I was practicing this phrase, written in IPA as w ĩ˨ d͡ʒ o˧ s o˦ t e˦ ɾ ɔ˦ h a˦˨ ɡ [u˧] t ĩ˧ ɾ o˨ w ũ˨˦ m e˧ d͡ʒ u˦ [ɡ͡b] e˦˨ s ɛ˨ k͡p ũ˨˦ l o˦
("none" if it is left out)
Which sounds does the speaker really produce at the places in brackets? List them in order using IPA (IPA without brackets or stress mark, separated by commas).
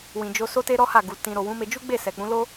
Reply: u˨, ɡ͡b